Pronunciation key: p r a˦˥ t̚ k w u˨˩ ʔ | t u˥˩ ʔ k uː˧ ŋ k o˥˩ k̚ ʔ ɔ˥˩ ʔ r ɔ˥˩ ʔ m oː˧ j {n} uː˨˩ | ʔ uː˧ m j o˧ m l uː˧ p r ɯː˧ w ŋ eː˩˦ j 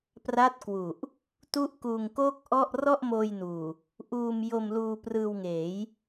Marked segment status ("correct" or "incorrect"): correct